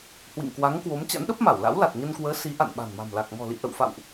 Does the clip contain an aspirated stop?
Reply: no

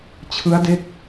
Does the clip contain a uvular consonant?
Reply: no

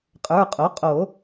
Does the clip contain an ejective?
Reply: yes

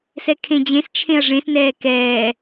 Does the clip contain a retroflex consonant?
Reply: yes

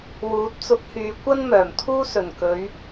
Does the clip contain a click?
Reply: no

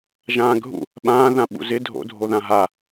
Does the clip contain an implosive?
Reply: yes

